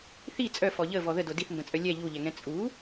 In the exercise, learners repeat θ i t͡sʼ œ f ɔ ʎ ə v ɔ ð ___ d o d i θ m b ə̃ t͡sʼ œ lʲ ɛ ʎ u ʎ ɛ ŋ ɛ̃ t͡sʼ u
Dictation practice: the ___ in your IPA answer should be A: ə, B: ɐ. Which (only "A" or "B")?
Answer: A